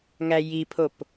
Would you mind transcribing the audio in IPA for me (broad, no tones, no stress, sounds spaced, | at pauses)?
ŋ æ j i pʰ o p